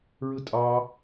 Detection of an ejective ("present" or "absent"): present